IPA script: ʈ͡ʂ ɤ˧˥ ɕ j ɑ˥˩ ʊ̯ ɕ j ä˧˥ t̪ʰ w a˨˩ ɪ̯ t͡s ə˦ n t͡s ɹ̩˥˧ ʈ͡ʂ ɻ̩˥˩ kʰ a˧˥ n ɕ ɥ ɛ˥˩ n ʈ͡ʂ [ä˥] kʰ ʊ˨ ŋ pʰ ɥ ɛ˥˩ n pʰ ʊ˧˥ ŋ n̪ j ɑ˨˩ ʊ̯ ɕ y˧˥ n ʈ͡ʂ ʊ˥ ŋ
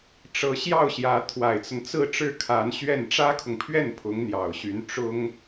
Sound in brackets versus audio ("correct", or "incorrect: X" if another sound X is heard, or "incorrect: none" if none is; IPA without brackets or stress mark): correct